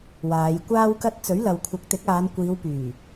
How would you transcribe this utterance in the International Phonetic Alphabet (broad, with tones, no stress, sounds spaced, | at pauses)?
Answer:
w aː˨˧ j kʷ aː˥ w k ɐ˥ t̚ t͡s ɵ˨˥ ɥ l ɐ˨ w kʷʰ ɐ˨˥ k̚ t̪ ɪ˨˥ k̚ aː˨˧ n kʷ iː˨˧ w p yː˨˩